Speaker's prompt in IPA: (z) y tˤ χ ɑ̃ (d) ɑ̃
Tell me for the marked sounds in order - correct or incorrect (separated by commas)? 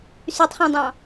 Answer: incorrect, incorrect